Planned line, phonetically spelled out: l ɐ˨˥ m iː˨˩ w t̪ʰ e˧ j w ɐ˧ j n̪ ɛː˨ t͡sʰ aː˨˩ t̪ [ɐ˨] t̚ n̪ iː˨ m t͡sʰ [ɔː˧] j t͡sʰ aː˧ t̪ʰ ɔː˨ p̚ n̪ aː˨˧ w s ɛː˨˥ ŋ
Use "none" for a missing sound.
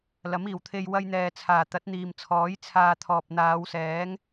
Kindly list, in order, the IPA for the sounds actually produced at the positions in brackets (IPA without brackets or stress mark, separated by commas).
ɐ˨˥, ɔː˨˥